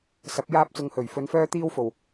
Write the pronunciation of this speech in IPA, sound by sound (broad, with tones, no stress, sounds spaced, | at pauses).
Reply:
s ɐ˨˥ p̚ j aː˥ p̚ t͡s ʊ˧ ŋ h ɵ˨˩ ɥ f ɵ˨˧ n f œː˥ t̪ iː˥ w f o˨˩ w